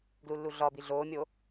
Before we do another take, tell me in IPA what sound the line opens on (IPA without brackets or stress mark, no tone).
ɡ